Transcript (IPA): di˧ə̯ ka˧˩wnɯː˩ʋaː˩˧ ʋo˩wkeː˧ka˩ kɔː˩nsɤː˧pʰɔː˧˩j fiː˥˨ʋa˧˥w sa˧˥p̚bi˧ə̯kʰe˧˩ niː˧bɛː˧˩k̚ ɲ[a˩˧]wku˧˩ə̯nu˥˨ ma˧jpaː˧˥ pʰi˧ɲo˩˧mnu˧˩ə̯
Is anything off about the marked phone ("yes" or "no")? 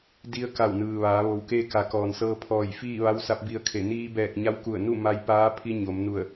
yes